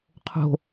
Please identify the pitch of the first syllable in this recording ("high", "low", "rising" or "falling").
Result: high